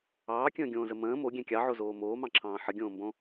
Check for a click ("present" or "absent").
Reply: present